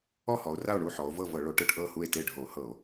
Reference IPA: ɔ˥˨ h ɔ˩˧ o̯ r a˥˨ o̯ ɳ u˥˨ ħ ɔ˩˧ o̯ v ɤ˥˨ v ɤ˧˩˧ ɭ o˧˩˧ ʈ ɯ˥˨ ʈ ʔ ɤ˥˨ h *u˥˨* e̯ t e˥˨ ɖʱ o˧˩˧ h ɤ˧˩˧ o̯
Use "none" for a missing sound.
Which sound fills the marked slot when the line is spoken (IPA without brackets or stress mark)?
u˥˨